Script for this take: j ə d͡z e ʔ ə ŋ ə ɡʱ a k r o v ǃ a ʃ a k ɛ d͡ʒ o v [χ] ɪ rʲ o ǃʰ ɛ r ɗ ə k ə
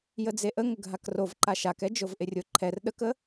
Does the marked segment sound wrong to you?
yes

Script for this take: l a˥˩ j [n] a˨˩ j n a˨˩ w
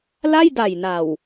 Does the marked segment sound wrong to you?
yes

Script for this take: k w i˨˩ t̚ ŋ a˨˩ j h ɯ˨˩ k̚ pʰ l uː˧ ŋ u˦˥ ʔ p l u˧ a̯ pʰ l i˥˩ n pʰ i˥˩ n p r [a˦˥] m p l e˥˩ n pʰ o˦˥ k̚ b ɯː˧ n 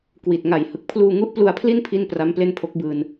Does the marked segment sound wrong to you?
no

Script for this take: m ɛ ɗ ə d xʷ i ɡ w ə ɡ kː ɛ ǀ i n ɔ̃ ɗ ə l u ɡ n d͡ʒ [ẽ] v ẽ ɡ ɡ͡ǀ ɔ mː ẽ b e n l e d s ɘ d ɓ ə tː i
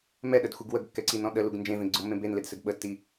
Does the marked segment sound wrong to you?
no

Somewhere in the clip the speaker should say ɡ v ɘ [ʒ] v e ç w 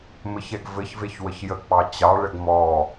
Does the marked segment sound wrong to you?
yes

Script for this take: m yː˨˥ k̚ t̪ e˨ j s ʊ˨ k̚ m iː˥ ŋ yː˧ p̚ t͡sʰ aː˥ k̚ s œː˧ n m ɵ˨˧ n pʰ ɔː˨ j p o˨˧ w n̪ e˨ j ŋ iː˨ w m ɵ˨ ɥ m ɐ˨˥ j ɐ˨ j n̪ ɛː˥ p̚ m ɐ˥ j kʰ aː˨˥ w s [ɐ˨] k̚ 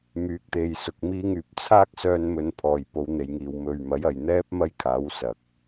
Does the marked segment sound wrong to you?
no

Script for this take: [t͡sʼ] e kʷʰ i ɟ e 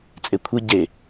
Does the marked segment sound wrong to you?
no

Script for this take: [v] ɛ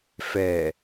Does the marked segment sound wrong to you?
yes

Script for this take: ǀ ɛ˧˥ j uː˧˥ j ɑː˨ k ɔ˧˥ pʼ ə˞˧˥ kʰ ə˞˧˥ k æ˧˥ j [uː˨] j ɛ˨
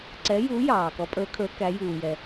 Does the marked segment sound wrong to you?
no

